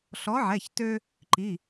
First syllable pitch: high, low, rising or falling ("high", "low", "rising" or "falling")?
rising